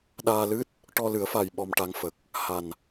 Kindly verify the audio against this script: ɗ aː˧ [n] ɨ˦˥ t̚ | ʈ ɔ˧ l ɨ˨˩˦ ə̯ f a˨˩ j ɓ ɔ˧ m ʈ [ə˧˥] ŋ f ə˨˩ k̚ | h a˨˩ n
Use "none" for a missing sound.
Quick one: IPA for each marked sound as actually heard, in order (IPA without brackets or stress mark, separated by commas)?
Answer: l, a˧˥